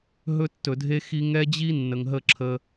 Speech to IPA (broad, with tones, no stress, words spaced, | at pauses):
ɦɵ˦tːɵ˨dʱe˦ xi˦ ŋɛ˦d͡ʑi˦ nːə˨ŋɦə˦˨ǁʰə˦